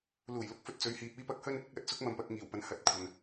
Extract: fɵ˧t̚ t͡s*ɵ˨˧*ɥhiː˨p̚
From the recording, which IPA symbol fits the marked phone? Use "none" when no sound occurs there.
ɵ˨˧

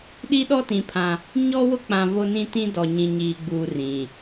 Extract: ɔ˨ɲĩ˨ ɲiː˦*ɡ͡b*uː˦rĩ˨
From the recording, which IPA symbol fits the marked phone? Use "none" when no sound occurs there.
ɡ͡b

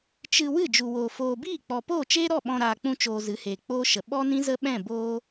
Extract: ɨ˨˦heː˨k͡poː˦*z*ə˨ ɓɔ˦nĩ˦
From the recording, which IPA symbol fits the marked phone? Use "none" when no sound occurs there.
ʃ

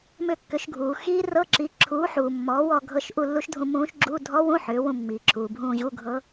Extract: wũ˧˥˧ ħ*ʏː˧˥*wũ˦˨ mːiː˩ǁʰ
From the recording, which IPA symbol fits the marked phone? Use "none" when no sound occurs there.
ʏː˩˥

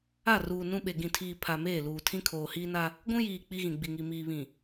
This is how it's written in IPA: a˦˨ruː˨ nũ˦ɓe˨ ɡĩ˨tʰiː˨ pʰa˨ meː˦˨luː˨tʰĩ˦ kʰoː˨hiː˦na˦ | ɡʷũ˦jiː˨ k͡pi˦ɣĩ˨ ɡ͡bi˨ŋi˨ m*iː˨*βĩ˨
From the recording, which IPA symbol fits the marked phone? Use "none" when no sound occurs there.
iː˨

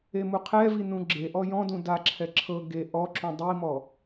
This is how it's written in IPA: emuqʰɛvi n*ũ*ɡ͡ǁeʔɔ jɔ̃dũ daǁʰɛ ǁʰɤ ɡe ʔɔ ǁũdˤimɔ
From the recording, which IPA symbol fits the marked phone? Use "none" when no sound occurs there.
ũ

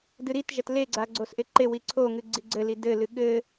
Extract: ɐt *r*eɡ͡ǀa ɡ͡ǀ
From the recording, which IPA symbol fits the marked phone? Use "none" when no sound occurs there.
l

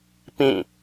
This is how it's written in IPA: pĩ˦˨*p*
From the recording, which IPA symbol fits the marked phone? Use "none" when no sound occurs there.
none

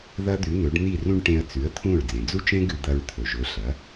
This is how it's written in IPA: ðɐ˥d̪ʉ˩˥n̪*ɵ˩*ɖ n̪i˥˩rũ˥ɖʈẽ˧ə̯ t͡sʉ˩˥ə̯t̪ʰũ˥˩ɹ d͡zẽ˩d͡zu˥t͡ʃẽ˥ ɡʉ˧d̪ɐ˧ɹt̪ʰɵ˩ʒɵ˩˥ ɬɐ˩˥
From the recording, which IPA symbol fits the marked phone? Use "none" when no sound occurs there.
ɵ˩˥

